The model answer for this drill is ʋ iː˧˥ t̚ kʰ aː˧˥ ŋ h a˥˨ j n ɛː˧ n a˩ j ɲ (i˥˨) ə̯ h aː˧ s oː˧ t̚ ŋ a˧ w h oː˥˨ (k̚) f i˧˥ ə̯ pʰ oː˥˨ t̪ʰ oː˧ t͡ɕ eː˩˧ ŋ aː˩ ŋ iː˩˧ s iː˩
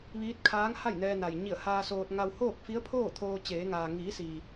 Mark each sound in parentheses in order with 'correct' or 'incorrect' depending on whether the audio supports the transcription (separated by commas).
incorrect, correct